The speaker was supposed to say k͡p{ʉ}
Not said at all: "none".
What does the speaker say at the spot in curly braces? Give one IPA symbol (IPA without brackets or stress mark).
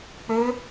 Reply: ø